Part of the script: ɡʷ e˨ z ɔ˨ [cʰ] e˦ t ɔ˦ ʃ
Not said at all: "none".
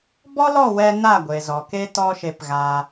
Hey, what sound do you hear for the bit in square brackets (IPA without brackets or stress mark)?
k